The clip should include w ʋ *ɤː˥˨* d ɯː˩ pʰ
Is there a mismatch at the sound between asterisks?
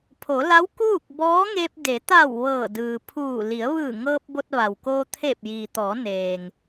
yes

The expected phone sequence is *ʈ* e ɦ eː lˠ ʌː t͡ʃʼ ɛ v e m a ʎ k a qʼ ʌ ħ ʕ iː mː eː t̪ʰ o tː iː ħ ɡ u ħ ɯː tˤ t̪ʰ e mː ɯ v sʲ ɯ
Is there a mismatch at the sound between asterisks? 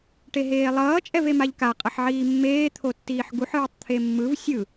no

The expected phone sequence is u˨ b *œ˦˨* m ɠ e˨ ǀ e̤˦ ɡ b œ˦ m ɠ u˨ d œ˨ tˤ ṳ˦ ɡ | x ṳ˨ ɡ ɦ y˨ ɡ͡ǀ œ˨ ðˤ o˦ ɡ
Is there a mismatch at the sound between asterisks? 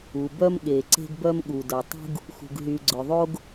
yes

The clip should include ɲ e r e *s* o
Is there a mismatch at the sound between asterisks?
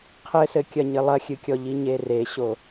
yes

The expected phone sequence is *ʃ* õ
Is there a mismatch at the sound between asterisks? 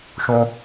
no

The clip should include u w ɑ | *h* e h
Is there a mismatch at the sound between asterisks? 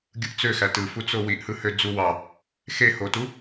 yes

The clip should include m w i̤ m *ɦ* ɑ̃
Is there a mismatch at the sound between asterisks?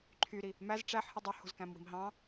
no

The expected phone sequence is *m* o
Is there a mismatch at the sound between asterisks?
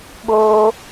yes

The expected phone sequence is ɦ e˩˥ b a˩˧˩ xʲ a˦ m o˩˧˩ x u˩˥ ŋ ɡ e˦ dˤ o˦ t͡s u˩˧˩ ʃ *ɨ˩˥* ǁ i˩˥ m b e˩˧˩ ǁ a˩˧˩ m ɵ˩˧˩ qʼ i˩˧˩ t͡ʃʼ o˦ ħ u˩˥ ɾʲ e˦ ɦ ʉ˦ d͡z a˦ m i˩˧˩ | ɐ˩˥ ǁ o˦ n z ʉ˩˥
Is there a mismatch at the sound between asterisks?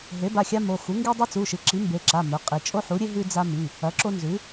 no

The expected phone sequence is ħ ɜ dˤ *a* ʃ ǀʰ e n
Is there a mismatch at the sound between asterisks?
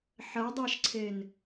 no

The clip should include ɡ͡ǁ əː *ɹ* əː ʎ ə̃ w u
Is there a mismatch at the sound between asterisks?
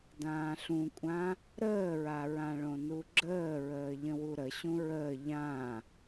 no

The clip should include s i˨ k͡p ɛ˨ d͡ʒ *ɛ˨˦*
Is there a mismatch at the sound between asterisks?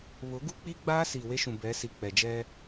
yes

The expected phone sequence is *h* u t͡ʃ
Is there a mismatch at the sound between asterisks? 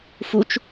yes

